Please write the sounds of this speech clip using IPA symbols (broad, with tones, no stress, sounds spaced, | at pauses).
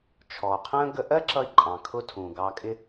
t͡ʃʰ ɔ˨ qʰ ə̃ː˦ ɡ ə˧ ʔ ɜ˦ ǁ ʌ˧ i̯ ǃʼ ɑ̃˨ kʰ ʊ˦ tʰ ũ˨ ɡ ɑ˧ kʼ ɪ˦